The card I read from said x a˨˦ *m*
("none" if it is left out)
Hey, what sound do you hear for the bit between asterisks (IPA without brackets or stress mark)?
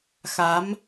m